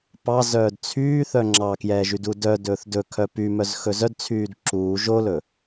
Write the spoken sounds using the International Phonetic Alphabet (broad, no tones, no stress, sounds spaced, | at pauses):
p ɑ z œː d t͡sʰ yː θ œ ŋ͡ǁ ɑ k j ɛː ʒ y d u d œ d ɵː θ d ɵ kʰ œ p y m œ z x ɵ z œ d t͡sʰ yː d ǁ uː ʒ o l ɵ